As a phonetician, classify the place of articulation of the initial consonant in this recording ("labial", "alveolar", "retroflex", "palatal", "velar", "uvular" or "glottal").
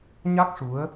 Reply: palatal